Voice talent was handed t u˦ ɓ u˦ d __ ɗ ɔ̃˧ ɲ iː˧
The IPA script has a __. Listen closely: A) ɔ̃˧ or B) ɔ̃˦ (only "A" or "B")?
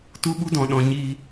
A